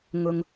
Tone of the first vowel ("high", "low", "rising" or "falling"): low